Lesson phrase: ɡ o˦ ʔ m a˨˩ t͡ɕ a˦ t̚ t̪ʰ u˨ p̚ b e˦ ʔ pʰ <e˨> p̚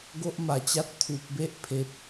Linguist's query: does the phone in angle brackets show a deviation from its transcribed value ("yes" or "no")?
no